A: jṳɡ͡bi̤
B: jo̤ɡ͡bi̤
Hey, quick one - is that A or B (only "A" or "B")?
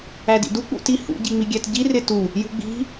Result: A